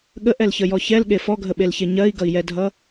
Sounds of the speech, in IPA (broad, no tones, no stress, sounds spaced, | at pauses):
ɠ ə ʔ ɛ l ç ə j ɔ ç ɛ l ɠ e f ɔ ɡʱ ə ɓ e l ç e ɲ ɜ i̯ ɡ ʌ i̯ j ɛ dʱ ʌ